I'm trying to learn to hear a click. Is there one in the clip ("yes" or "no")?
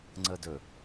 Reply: yes